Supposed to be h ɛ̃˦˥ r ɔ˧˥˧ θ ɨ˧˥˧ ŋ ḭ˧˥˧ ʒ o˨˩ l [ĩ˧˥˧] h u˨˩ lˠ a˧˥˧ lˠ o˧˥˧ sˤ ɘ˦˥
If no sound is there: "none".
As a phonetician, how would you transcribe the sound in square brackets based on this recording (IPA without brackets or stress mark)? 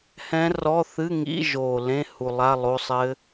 ẽ˧˥˧